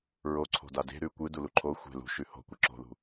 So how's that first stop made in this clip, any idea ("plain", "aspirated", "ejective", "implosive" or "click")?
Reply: click